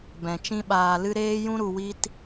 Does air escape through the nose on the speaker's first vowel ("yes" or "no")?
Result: yes